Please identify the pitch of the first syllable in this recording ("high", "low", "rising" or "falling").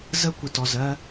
high